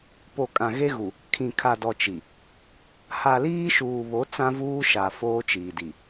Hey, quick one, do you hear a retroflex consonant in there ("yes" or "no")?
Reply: no